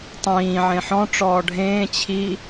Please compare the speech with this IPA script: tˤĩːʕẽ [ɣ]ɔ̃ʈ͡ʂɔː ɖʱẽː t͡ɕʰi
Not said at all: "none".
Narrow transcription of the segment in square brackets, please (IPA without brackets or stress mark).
ħ